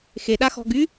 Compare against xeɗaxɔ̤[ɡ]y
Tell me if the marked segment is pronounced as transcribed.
yes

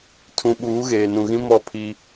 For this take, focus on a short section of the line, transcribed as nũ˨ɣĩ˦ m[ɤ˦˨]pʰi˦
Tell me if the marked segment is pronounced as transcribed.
no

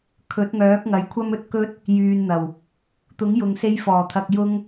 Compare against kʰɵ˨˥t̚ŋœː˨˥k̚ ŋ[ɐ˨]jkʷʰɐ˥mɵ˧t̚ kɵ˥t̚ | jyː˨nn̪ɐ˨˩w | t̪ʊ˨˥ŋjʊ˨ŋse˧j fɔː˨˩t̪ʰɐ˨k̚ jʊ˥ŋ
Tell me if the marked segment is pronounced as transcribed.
yes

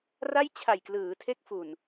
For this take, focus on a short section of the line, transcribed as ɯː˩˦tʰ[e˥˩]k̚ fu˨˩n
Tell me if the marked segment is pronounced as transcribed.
no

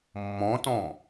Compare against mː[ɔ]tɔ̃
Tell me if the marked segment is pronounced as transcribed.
no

